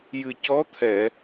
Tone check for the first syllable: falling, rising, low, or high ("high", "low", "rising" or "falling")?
low